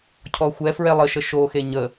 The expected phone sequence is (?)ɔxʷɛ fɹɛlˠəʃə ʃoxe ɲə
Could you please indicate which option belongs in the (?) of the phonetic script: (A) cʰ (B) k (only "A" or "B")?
A